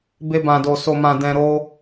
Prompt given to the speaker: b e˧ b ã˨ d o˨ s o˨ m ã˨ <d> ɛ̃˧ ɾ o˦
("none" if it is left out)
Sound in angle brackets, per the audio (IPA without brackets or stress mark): d